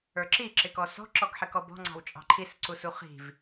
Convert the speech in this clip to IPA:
ə˞ ǁ i ǁ ɪ k ɔ s ɔ̤ ǁ ɔ ɡ ħ ɪ k ɔ b ɔ̤ ŋ͡ǀ ɑ̤ w t͡ʃʼ ɑ̤ ǃʰ i s ǀ u s u χ i̤ v

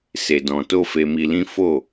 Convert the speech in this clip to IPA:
s e˧ d ɔ̃˧ t o˦ f e˧ m i˧ l ĩ˦ f o˦˨

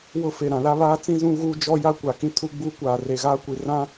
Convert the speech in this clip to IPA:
w ʊ˦ f e˨ ɾ ã˨ l a˦ β aː˦ t͡s ĩ˦ z ũ˦ ɣ uː˦ d͡ʒ ɔ˦ j a˦ kʷ a˨ k ĩ˦ tʰ u˦ ɡ͡b uː˦ kʷ aː˨ r e˨ ɣ aː˦ kʷ i˨ r ã˦

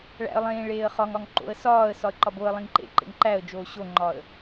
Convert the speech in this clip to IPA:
ɭ æ̰ ə̯ lˠ ẽː ɭ eː ə̯ χ ɒ ŋ ɒ ŋ ǃ o̰ ə̯ s ɒː ə̯ s ɒ ə̯ ǃ ɒ b o ə̯ lˠ ĩ ŋ ǃ ḛ ǃ ḛ ŋ ǃ æ ə̯ d͡ʒ oː ɕ o ŋ͡ǃ ɒ ə̯

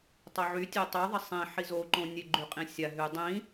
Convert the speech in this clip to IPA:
tˤ o ʕ y tʲ e tˤ y ðˤ ə sˤ ĩ ħ i z o ǃ õ nʲ e ɡ͡ǃ y qʼ ĩ sʲ a ɦ y dˤ ĩ

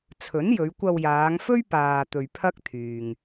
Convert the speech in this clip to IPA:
t͡sʰ ɵ˨˥ n j ɵ˨˧ ɥ kʷ ɐ˧ w j aː˨˧ ŋ f ɵ˥ ɥ p aː˨ t̪ ɵ˨ ɥ pʰ ɐ˥ k̚ t̪ʰ yː˨ ŋ

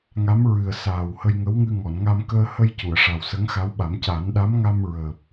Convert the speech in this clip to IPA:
ŋ a˧˥ m ɹ ɨ˨˩ ə̯ s aː˨˩ w h ə˧ j ŋ ə˧˥ w ŋ ɨ˧ ŋ ɔ˨˩˨ n ŋ a˧ m k əː˧ h ə˧ j c u˨˩˨ ə̯ ʂ a˨˩ w s ə˧˥ ŋ x a˧˥ w ɓ a˨˩˦ m c a˨˩˦ n ɗ a˧˥ m ŋ a˧ m ɹ əː˨˩ p̚

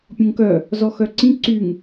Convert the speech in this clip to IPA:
pʲ õ ŋ k œ | z ɔ x œ ǀ ĩ ǀ y ŋ

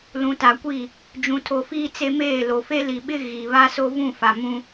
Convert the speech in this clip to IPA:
l ũ˨ t a˨ kʷ i˦˨ | d͡ʒ ũ˨ tʰ o˨ f iː˦ t͡s e˦ m eː˦˨ l o˨ f e˦ l i˨ ɓ ɪ˦ ɣ i˨ β a˦ s o˦ v ũ˦˨ f a˨ m ũ˦

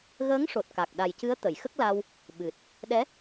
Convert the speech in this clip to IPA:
ɣ əː˧˥ ŋ ʂ o˨˩ t̚ k a˨˩ k̚ ɗ a˨˩ j c ɨ˧˥ ə̯ t̪ ə˨˩˨ j x ə˦˥ k̚ l a˧ w | ɓ ɨ˨˩ t̚ | ɗ ɛ˧˥

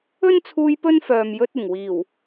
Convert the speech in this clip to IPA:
ɵ˥ n t͡sʰ uː˧ j p ɵ˥ n f œː˨ m j ɵ˧ t̚ ɪ˨˩ ŋ w iː˨˩ w

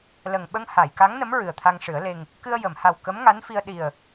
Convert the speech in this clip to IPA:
l ə˨˩ ŋ ɓ ə˧ ŋ h a˨˩˨ j k a˧˥ ŋ n ə˧˥ m ɹ ɨ˨˩ ə̯ t̪ʰ a˧ ŋ ʂ ɨ˨˩˦ ə̯ l e˧ ŋ | k ɨ˧ ə̯ j ə˨˩˨ m h a˨˩ w k ə˧˥ m ŋ a˧˥ n f i˧ ə̯ ɗ i˨˩ ə̯

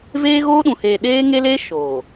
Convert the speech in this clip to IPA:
v eː˦ ɣ oː˦ ɗ ũ˨ h eː˨ ɗ eː˦ ŋ e˦ l eː˦ ʃ oː˨

